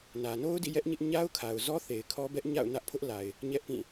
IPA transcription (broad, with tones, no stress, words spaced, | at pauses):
nä˨no˦ʊ̯dḭ˦˨jɛ˦ʔ ɲɪ˦ʔ ɲa˦ʊ̯kʰa˨ʊ̯zɔ˦θe˨ɪ̯ kʰɔ˦bɛ˦ʔ ɲa̰˦˨ʊ̯nä˦ʔpʰʊ˦ʔla˨ɪ̯ | ɲɛ˦ʔpĩ˦˨